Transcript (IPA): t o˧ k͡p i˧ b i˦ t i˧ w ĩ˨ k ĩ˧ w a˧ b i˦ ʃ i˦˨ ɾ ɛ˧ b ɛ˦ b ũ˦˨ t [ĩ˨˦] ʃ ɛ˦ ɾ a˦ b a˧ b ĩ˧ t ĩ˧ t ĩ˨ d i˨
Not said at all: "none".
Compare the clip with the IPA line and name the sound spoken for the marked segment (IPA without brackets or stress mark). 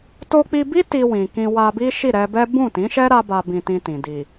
ĩ˨˦